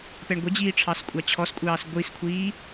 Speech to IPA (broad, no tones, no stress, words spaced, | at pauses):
pɛɳɡʷɛd͡ʑiː ʈ͡ʂʰɑskʷʼɑt͡ɕʰɔskʷʼɑːs ɡʷiskʷʰiː